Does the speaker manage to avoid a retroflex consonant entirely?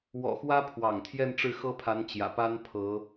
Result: no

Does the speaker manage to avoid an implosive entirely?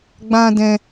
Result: yes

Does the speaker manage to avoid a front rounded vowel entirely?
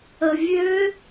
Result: no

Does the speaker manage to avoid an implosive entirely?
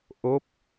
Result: yes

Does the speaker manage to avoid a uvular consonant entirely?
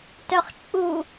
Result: no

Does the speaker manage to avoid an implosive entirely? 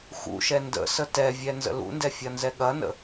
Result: no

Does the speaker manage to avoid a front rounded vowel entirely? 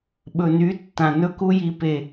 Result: no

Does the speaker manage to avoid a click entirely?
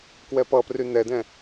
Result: yes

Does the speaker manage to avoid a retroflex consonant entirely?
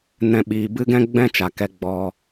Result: yes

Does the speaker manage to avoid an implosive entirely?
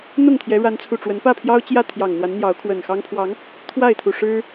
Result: yes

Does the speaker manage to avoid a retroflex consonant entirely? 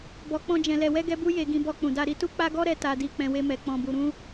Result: yes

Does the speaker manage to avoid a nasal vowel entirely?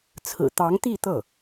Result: yes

